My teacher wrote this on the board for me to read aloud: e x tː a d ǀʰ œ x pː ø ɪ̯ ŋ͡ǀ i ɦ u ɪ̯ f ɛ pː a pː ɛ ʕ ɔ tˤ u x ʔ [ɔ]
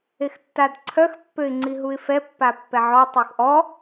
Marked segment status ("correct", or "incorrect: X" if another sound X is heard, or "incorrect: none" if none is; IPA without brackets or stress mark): correct